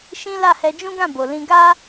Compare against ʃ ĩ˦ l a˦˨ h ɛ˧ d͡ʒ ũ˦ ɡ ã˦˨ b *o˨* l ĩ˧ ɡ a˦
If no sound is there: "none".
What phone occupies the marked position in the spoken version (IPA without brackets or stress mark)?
o˨